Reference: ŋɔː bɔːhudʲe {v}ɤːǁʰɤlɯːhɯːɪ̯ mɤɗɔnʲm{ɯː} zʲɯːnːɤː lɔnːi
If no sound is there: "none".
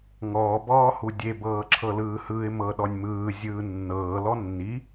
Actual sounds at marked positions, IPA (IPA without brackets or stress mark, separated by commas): b, ɯː